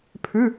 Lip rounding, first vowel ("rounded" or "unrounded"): rounded